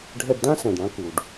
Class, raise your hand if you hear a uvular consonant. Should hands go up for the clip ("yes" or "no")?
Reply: no